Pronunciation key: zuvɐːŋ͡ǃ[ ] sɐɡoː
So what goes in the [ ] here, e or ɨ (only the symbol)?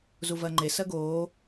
e